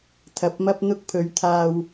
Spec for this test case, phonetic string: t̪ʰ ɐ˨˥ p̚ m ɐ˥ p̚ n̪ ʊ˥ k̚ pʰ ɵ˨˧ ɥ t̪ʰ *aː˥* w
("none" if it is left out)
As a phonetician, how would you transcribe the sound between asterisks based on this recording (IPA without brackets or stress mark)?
aː˨